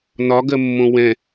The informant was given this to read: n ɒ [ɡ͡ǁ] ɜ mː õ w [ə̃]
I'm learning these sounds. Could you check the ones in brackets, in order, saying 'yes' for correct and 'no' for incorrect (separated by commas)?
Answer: no, no